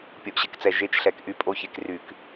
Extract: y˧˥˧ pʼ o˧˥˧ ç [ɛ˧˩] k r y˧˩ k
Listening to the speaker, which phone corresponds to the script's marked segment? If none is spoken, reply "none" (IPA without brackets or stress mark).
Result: e˧˩